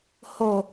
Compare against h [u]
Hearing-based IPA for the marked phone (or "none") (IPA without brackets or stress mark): o